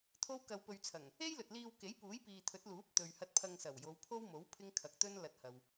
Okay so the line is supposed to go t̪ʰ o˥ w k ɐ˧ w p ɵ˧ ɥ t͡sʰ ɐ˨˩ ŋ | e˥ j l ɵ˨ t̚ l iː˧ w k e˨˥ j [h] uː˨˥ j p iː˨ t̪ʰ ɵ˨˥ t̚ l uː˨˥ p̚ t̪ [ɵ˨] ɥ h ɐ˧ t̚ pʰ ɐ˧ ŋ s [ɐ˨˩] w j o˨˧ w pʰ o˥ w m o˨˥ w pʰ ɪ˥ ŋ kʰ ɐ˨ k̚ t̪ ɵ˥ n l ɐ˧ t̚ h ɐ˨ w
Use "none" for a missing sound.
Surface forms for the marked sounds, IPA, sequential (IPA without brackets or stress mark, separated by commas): p, ɵ˨, ɐ˨˩